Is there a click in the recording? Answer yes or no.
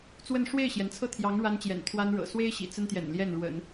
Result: no